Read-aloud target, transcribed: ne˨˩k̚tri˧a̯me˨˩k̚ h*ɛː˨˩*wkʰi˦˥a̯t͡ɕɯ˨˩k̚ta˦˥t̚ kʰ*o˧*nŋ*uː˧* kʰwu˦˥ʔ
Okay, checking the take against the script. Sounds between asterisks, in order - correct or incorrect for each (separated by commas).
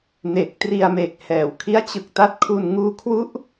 incorrect, incorrect, incorrect